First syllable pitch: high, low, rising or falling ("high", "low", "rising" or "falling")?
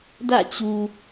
falling